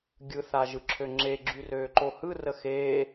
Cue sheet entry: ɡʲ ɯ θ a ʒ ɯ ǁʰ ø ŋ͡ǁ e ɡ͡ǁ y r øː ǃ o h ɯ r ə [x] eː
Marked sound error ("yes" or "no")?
no